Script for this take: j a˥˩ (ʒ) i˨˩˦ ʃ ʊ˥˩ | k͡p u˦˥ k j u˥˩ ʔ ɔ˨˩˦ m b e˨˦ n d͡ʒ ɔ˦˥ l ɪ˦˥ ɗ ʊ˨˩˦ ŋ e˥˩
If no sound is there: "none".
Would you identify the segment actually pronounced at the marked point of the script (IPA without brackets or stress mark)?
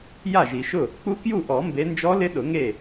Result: ʒ